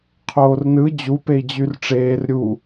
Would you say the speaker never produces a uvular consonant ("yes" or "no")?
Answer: no